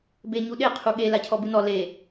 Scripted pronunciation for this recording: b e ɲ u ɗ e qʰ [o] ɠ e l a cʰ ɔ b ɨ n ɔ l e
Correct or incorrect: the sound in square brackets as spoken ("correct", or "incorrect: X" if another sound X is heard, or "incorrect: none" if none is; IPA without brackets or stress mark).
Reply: incorrect: u